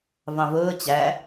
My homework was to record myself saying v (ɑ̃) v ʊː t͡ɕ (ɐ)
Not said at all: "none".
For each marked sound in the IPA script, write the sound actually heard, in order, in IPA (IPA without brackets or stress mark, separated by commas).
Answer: ɑ̃, æ